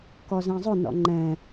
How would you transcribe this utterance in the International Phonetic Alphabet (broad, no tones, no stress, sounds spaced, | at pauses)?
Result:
k ɔ z ɛ̃ zˤ ʊ n ɔ̰ ŋ͡ǃ ɛ̃